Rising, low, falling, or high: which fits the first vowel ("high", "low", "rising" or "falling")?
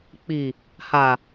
low